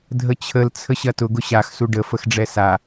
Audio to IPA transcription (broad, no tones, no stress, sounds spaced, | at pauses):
dʱ ə t͡ɕʰ ə l t͡sʰ ə ɕ ɐ t ʊ ɡ ʊ ɕ a x s u ɖ ə f ə x ɖ͡ʐ ɛ s a